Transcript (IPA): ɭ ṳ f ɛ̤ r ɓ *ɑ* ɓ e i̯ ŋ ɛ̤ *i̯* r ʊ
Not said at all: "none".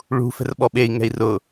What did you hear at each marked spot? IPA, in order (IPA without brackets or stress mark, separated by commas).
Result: ɔ, i̯